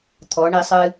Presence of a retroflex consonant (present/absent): present